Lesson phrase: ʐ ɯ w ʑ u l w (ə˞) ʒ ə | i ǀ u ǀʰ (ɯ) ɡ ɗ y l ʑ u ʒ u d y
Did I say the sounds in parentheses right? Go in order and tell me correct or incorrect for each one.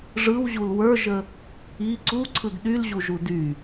correct, correct

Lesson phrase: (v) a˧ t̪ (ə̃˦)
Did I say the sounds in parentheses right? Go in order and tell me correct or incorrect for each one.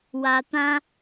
incorrect, incorrect

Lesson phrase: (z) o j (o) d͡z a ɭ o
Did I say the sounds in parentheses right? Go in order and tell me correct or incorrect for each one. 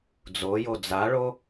incorrect, correct

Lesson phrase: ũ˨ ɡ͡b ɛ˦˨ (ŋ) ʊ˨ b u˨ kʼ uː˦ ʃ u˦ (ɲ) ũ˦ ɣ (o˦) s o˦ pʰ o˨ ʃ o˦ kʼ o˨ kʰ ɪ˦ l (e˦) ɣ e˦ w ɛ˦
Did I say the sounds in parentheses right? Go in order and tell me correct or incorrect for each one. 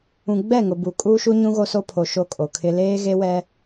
correct, correct, correct, incorrect

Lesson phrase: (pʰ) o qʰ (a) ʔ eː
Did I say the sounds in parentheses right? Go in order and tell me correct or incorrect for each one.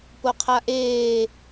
incorrect, correct

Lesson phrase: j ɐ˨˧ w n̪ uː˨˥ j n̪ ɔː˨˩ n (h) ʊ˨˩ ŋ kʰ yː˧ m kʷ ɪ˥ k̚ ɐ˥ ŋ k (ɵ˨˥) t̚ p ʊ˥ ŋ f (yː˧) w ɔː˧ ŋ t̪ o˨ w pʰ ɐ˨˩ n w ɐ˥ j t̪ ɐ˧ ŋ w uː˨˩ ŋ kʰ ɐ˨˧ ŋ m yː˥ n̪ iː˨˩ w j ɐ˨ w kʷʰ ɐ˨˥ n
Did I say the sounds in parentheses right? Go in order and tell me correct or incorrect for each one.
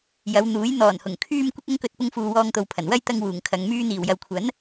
correct, incorrect, incorrect

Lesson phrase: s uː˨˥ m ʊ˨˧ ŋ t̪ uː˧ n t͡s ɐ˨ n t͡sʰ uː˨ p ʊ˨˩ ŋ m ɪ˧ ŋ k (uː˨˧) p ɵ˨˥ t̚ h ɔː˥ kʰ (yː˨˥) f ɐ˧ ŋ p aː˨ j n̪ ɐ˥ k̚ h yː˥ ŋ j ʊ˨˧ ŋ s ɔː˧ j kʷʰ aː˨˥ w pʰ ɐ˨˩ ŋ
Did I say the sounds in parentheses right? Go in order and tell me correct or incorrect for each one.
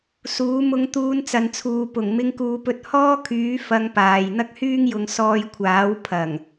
correct, correct

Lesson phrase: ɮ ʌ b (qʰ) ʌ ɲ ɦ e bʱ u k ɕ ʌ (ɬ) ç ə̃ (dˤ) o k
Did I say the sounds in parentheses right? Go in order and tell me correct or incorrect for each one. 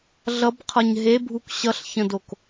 correct, correct, incorrect

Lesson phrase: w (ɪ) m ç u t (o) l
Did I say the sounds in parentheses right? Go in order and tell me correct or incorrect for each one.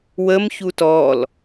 incorrect, incorrect

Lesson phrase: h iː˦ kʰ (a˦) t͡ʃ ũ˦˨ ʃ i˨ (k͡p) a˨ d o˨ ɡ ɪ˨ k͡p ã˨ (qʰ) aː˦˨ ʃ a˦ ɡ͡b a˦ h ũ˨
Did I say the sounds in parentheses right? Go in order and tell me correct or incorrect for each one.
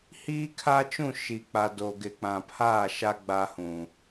correct, correct, incorrect

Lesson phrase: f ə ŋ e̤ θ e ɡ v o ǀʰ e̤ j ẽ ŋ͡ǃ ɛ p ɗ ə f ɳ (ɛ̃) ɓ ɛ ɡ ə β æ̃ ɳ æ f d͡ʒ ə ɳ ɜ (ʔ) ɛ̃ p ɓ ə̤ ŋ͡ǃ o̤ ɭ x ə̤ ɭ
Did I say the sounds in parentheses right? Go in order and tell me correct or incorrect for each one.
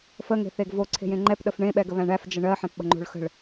incorrect, incorrect

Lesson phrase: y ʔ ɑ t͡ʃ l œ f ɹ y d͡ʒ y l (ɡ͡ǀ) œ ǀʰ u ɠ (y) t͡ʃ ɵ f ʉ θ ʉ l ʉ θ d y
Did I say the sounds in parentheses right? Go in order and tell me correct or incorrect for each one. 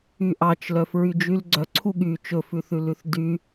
correct, correct

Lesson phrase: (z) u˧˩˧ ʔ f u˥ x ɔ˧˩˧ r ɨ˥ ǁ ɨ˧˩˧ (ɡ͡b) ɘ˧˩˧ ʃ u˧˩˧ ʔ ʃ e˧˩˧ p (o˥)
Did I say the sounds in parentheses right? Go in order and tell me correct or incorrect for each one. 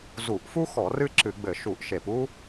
correct, correct, incorrect

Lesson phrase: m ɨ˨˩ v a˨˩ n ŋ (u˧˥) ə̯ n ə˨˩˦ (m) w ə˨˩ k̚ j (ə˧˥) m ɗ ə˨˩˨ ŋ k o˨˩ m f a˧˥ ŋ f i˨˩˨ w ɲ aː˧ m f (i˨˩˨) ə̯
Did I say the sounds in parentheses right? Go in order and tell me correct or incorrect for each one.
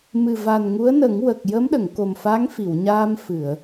correct, incorrect, correct, incorrect

